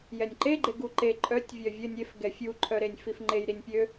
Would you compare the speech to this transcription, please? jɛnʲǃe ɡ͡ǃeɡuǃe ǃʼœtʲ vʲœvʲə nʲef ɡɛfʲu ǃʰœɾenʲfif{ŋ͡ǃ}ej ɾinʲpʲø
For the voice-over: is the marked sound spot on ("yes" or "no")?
yes